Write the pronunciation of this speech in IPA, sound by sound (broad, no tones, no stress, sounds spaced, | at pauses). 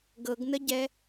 ɡ ɤ ɡ n ə ɟ ɛ